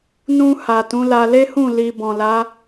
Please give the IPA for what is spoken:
n ũ˧ h a˨ t ũ˨˦ l a˧ l e˦ h ũ˦˨ l i˧ b ɔ̃˨ l a˨˦

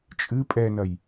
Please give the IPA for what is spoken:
t͡ʃʼ ɨ pʼ ɛ n ɐ j

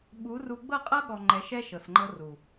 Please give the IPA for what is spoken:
ɓ u˨˦ r u˧ ɡ͡b ɤ˦˨ qʼ ɤ˦ ɠ ɔ˨ ŋ͡ǃ ɛ˨˦ ʃ ɛ˦ ʃ ɤ˨ s ŋ͡ǃ ɤ˦ r u˨

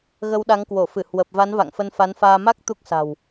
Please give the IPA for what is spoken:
ɣ ə˧ w ɗ a˨˦ ŋ k w o˧˩ f ɨ˧˩ h w ə˨˩ p̚ v a˨˦ n v a̰˧˨ ŋ f ə˧ n f a˨˦ n f aː˧ m a˦˥ k̚ t̪ u˦˥ k̚ s a̤˨˩ w

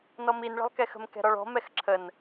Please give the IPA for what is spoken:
n ɔ m i n ɭ ə̤ lˠ k ɛ x ə̤ m k ɛ̤ ɾ ɔ ɭ ɔ̤ m ɛ x ǁʰ ə n

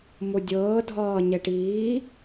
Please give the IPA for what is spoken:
m o dʲ ɤː dʱ ɒː ɲ ɛ ʈ iː

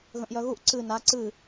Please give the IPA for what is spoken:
ɣ ə̃ ʔ j œ ɣ u ʔ ǀ ɨ n a ǀ ɨ

